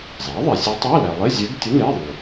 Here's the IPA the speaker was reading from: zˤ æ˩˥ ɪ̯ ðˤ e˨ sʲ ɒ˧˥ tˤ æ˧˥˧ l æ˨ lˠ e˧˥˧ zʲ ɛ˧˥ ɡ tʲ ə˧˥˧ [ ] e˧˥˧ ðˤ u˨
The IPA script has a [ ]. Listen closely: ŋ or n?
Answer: n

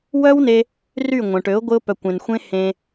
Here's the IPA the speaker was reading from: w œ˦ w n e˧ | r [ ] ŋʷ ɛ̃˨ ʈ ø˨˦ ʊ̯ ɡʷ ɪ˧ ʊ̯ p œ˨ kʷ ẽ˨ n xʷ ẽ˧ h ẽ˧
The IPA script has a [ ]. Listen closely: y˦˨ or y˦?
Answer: y˦˨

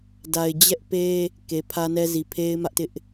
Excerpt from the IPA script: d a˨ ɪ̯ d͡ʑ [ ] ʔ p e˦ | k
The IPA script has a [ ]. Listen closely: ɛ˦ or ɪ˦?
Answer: ɛ˦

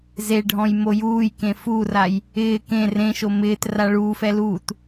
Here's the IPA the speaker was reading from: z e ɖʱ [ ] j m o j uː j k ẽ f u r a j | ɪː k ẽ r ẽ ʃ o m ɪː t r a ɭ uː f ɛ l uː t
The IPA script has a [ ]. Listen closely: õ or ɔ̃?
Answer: ɔ̃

